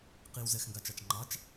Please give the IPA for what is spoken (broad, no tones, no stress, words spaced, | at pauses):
qiw zɛxŋɡat͡ʃɑt͡ʃ ŋ͡ǃɑt͡ʃ